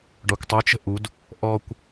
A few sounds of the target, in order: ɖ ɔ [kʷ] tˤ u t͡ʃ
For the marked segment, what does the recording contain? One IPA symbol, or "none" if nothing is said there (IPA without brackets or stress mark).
kʷ